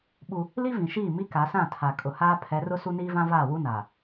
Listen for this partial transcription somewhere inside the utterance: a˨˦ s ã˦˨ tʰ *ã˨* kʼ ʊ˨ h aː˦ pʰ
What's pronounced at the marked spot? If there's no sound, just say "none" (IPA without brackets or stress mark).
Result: a˨